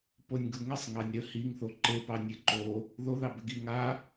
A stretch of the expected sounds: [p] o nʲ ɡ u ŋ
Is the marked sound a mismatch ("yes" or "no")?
no